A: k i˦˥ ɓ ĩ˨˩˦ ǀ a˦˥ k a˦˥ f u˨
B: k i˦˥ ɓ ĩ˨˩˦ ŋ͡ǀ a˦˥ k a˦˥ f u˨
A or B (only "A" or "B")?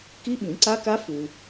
A